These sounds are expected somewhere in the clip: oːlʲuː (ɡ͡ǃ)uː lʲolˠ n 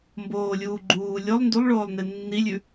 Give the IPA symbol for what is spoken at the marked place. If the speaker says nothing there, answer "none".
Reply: ɡ͡ǃ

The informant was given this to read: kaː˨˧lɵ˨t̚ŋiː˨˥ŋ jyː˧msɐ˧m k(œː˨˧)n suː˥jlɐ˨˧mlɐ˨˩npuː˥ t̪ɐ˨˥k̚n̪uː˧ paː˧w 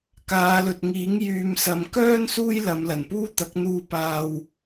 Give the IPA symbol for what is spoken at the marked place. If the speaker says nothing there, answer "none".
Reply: œː˥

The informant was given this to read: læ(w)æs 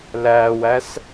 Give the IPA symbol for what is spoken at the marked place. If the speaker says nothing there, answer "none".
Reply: w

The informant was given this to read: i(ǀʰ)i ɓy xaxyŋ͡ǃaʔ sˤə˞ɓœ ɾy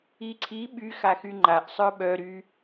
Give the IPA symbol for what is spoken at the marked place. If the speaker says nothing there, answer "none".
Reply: ǀʰ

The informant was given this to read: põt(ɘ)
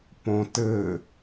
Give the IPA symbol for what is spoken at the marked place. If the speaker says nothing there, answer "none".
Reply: ɘ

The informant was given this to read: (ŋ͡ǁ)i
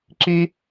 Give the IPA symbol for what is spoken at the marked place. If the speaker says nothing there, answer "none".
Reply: ǁ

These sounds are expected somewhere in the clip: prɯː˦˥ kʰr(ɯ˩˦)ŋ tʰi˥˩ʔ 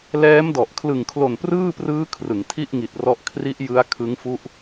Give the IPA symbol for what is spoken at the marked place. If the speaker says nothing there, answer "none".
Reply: ɯ˩˦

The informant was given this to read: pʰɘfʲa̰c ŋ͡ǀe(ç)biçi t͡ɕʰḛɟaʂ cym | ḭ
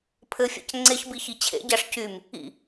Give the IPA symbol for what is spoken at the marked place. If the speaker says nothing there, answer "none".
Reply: ç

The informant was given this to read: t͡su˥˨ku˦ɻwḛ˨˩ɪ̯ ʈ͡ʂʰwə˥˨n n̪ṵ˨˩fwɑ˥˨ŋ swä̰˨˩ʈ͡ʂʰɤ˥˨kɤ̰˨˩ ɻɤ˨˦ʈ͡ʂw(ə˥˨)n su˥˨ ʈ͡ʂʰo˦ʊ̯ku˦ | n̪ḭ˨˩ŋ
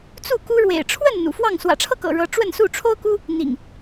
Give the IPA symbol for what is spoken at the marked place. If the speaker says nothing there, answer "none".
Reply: ə˥˨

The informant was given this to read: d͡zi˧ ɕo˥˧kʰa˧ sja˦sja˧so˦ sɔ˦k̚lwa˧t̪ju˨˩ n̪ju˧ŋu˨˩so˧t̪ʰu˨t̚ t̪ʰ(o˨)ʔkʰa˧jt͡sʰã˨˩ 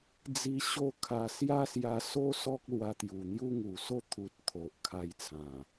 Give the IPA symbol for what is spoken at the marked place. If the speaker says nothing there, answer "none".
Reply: o˨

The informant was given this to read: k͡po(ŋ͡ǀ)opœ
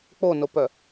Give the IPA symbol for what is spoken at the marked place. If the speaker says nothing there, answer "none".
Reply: n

